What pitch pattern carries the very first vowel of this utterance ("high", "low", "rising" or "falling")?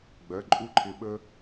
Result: rising